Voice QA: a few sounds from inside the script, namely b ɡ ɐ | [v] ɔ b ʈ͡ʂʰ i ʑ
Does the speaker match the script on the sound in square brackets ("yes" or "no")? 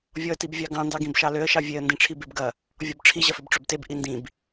no